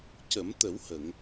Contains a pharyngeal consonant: no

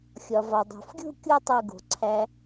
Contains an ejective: no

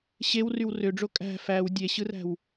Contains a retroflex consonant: yes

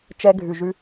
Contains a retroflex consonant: no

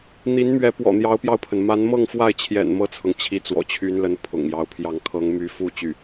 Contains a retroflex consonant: no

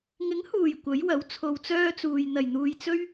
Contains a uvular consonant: no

